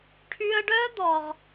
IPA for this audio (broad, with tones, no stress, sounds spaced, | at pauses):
ʈʰ y˧ ə̯ ɖ œ˦ d̪ ɔ˨ ʁ